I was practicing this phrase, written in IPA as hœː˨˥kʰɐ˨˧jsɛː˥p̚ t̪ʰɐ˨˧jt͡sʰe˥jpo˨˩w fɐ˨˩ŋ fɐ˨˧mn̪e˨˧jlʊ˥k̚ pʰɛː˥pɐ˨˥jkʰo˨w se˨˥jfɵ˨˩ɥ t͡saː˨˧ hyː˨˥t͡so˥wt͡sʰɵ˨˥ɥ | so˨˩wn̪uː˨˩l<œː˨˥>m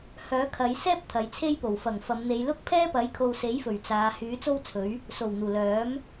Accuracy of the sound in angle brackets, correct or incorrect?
correct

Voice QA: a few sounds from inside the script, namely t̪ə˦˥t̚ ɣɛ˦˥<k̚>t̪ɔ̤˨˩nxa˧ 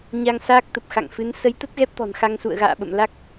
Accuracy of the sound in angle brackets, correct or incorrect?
incorrect: p̚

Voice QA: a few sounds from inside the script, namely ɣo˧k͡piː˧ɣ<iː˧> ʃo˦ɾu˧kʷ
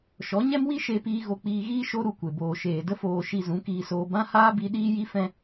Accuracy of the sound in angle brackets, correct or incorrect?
incorrect: iː˦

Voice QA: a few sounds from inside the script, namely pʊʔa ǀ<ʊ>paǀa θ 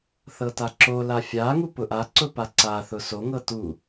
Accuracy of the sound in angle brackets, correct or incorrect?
correct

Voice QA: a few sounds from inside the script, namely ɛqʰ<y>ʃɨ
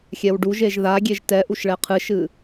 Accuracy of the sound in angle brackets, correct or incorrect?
incorrect: ɨ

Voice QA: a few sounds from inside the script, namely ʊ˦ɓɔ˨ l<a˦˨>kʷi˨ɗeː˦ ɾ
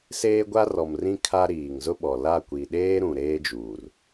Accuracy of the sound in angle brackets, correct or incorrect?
correct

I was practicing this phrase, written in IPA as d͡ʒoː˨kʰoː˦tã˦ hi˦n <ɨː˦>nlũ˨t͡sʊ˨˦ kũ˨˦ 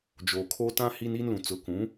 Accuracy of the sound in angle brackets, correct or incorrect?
incorrect: iː˦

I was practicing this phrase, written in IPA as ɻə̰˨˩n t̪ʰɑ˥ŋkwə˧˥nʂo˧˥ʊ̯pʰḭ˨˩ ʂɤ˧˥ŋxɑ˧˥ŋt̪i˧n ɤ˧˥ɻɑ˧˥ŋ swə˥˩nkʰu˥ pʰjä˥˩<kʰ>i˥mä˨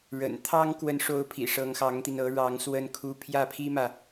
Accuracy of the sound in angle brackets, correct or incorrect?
incorrect: pʰ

